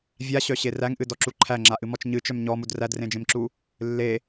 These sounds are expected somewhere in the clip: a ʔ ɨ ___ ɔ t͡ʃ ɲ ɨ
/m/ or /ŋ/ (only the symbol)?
m